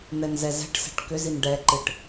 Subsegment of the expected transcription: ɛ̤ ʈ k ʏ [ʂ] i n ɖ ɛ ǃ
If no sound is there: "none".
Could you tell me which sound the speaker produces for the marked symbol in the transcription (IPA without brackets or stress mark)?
z